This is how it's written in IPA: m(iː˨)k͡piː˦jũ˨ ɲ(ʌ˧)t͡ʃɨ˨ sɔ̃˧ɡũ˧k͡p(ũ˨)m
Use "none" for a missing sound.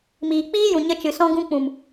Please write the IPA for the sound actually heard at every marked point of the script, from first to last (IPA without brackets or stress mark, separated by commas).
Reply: iː˨, ə˧, ũ˨